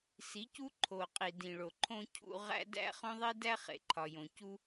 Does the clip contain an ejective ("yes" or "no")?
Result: yes